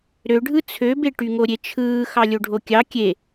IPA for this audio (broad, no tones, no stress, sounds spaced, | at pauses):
ɾ ø ɖʱ ɯ t͡sʰ ø b e ʈ y ŋ o ɾʲ e t͡ʃʰ ɯː x ɑ lʲ o ɖʱ o kʲ ɑ kʲ e